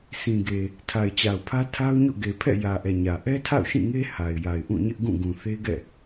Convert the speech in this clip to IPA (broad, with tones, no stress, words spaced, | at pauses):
sʰĩ˨ɡe˨ | tʰa˨ɪ̯t͡ɕa˨ʊ̯pʰä˦ tʰa˦ʊ̯ɲo̰˦˨ ɡe˨pʰɛ̰˦˨ jä˨ʔɛ˨ ɲä˨ ʔɛ˦tʰa̰˦˨ʊ̯ ʃĩ˦˨ŋe˦ ha˨ɪ̯ja˨ɪ̯ ʔũ˦˨ɲɪ˦ʔɡũ˦˨ ɡũ˨θe˦ɡɛ̰˦˨